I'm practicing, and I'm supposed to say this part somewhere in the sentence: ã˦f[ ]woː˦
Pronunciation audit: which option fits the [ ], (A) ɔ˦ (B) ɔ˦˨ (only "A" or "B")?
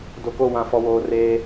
A